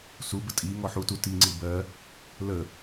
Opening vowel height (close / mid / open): close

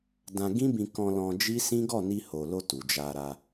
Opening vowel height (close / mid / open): open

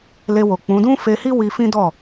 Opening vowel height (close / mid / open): mid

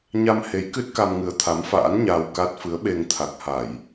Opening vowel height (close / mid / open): open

